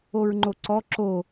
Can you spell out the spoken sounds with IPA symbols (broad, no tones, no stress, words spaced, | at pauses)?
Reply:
oɹŋ͡ǃoǀɔ ǁo